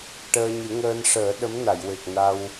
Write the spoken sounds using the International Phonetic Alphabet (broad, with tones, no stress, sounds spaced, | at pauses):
ʈ əː˧ ɲ ɨ˨˩˦ ŋ əː˧ n ʂ əː˨˩˦ ɗ ə˧˥ m n a˨˩˨ j w e˨˩ k̚ n a˧ w